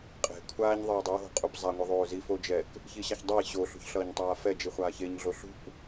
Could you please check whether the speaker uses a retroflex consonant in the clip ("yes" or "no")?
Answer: no